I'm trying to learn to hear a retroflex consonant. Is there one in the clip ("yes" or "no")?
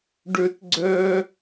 yes